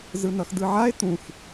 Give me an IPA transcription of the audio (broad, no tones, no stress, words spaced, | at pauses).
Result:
zɯnʌxdɯʕae̯ tũx